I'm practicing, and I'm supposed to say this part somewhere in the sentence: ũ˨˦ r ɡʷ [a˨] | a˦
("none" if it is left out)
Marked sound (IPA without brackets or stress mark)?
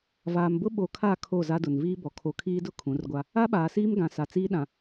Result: a˦